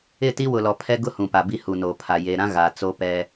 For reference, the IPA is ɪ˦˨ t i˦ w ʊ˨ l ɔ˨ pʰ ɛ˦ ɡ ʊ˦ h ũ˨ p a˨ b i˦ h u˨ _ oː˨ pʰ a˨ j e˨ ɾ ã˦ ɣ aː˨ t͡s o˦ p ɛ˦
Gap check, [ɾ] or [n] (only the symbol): n